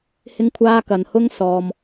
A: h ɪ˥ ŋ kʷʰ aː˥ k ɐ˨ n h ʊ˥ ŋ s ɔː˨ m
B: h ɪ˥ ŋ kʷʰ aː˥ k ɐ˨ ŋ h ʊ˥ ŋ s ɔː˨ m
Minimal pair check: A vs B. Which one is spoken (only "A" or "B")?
A